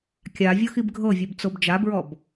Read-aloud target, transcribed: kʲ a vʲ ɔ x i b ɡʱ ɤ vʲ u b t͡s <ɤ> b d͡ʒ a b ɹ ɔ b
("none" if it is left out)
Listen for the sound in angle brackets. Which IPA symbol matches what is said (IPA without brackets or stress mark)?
o